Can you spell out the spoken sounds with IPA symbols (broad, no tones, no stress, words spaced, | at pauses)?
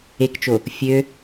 ekt͡ʃo | fʲø